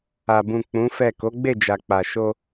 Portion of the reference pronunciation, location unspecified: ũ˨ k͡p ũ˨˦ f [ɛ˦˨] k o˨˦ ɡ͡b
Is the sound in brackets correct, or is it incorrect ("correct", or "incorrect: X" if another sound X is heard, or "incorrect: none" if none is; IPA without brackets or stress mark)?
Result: correct